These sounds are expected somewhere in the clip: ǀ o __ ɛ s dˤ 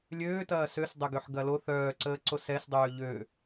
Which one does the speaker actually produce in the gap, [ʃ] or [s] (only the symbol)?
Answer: s